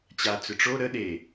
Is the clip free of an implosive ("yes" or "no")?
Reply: no